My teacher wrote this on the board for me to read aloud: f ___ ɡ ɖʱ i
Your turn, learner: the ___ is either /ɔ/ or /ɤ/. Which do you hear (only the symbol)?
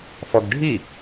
ɔ